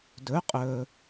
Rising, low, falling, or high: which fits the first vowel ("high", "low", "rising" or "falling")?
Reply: rising